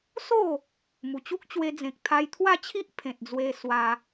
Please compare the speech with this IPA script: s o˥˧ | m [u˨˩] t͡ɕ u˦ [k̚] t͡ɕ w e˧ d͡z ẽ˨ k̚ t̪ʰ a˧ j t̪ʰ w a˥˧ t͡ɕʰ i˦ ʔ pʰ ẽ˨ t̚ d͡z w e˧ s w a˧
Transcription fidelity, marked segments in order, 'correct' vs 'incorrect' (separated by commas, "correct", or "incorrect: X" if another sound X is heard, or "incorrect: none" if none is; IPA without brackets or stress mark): correct, correct